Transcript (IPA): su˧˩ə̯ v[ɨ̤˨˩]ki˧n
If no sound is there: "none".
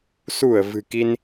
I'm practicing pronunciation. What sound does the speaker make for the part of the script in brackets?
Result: ɨ̤˨˩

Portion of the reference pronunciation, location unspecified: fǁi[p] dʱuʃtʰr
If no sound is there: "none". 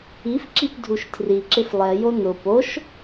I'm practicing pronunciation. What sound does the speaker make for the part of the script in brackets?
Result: p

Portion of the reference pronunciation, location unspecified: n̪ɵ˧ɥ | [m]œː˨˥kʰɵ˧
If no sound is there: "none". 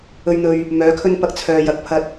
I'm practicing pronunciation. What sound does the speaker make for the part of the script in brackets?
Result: m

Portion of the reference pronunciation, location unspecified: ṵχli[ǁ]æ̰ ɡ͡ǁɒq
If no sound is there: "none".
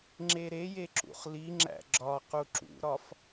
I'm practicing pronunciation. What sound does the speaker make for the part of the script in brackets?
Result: ŋ͡ǁ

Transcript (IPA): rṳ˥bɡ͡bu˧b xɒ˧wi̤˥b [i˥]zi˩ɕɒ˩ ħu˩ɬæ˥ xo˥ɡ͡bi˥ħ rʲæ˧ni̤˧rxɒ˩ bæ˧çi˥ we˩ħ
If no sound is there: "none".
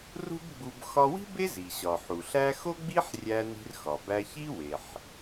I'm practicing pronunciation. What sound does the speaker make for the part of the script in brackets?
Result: e˥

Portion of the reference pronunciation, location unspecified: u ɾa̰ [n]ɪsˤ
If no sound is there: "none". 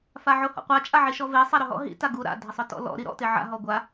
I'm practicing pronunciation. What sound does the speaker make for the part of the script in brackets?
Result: dʱ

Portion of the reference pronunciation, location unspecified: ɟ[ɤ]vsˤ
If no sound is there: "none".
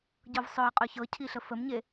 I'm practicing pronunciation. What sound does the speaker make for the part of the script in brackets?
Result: ɤ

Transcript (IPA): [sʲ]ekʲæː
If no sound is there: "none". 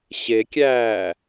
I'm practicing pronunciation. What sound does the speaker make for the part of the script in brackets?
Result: ɕ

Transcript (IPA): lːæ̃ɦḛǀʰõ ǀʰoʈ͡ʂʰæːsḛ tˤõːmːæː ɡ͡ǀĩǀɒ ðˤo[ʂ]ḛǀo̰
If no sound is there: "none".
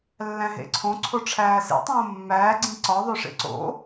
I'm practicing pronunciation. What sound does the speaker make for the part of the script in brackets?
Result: ʂ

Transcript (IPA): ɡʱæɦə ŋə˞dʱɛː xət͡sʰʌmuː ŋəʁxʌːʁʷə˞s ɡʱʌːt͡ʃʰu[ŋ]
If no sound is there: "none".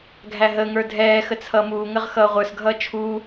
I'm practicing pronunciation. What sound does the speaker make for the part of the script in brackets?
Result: none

